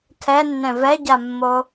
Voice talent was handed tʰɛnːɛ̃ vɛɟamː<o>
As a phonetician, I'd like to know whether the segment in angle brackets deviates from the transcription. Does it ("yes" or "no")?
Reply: no